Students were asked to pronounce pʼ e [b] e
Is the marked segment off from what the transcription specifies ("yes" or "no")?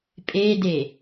yes